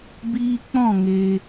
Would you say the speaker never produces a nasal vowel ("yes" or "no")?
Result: no